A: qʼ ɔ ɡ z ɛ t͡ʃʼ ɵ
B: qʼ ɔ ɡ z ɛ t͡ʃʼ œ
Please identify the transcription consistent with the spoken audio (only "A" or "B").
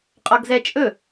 A